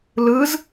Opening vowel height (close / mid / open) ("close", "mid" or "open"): close